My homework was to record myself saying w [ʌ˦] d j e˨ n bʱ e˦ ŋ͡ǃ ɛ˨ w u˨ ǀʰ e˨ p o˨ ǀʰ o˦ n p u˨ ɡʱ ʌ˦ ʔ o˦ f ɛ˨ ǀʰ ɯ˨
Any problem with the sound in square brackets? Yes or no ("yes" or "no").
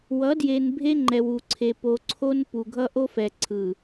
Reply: yes